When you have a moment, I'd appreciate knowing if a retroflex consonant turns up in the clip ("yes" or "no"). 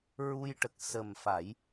yes